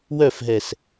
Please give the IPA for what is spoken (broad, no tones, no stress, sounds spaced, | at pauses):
w œ f ɦ ɛ s